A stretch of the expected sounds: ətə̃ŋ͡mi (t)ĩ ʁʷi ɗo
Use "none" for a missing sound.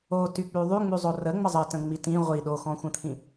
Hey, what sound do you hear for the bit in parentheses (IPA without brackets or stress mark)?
t